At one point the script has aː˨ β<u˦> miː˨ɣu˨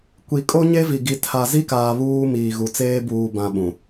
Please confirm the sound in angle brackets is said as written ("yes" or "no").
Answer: no